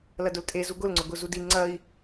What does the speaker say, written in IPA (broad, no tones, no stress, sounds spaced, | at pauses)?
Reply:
l ɐ d ʊ l tʼ e z u ɡ ʊ l ŋ͡ǀ ʊ ɡ ʊ z u d i ŋ͡ǀ ɐ i̯